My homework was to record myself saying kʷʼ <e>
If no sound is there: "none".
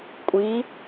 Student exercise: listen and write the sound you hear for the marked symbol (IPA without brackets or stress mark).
i